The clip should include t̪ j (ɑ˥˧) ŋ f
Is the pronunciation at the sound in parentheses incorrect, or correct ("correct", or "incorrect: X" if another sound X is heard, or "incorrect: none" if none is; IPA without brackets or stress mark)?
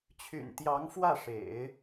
incorrect: ɑ˧˥